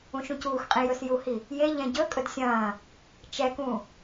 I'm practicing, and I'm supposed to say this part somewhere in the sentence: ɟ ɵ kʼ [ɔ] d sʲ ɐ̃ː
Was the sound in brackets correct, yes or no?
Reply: no